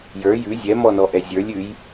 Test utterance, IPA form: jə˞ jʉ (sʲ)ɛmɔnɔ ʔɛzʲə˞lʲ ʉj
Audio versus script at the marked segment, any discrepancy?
yes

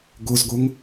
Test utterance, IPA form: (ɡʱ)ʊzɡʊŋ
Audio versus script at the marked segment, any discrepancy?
yes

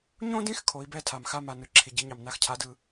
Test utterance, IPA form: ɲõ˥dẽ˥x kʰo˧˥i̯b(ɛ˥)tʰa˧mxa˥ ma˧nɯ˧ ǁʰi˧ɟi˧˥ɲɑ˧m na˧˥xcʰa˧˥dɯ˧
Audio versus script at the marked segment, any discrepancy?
no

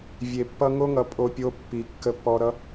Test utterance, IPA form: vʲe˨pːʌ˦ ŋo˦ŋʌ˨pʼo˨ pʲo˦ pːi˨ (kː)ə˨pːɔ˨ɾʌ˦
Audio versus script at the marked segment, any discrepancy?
no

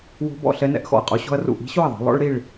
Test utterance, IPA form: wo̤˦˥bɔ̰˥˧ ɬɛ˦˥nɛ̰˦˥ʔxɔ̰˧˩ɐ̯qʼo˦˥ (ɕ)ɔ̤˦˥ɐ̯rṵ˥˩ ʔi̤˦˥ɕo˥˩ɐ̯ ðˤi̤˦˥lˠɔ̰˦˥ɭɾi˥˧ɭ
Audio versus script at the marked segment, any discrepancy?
no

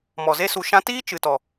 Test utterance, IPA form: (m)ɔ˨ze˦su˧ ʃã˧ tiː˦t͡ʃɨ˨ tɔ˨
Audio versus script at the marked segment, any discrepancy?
no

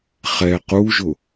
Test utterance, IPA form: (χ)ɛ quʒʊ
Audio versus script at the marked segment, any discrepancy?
no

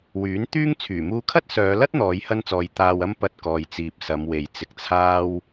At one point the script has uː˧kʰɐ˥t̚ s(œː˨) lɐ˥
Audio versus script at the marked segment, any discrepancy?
yes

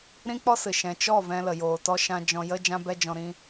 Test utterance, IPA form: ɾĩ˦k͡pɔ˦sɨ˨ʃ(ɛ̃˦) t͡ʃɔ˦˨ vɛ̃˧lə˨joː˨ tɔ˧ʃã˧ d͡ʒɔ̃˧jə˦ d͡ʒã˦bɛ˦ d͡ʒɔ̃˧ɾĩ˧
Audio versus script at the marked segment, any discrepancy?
yes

